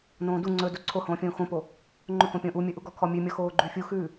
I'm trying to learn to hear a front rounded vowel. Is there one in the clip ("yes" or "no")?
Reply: no